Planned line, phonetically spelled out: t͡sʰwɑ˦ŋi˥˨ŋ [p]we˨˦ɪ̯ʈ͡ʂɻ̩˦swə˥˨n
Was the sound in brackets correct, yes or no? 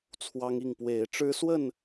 yes